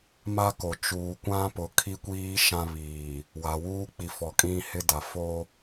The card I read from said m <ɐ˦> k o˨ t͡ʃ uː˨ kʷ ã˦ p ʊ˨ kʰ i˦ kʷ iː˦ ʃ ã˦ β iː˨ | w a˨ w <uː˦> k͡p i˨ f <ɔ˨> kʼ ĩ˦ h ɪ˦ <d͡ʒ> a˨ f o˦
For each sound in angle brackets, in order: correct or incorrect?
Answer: incorrect: a˦, correct, correct, incorrect: d

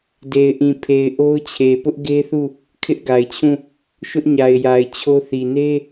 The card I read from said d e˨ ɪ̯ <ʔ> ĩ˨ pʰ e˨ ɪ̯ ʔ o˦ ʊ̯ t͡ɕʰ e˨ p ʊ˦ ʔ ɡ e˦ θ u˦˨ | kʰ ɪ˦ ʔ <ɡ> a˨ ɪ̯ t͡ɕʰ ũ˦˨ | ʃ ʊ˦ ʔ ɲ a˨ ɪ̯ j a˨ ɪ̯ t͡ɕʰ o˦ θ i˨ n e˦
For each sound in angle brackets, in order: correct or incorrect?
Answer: correct, correct

